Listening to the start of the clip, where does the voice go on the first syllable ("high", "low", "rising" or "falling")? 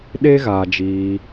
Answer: high